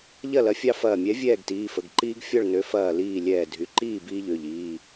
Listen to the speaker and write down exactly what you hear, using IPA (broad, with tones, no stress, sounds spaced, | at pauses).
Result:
ʎ ɐ˥˨ l ɐ˨˥ fʲ ɑ˦ f ɐː˧˩ mʲ ɛ˨˥ vʲ ɛː˥˨ ɡ t iː˩˧˩ f ə˩˧˩ ɡ ǃ iː˦ ɡ fʲ ɔ˥˨ ɭ n ø˨˥ f ɐː˧˩ l iː˧˩ lʲ ɛː˧˩ dʱ y˩˧˩ ǃ iː˥˨ b iː˦ ʎ ø˩˧˩ ʎ iː˩˧˩